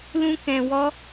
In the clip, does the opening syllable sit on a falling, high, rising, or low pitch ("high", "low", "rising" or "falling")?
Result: high